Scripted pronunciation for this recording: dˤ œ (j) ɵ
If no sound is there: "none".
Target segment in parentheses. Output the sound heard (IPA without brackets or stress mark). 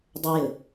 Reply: j